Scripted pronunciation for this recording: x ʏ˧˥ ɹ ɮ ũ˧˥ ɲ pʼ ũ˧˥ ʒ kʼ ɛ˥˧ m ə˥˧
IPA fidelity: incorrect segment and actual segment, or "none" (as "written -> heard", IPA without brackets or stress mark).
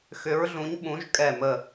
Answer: pʼ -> ɓ